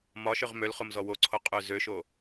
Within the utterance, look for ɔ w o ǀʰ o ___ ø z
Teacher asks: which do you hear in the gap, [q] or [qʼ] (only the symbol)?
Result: qʼ